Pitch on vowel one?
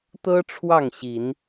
high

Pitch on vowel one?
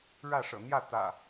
falling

